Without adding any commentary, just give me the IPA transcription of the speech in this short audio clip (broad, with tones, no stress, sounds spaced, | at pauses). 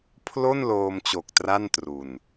pʰ l o˥˩ n l oː˧ m t͡ɕ o˨˩ k̚ t r a˥˩ n t r u˨˩ n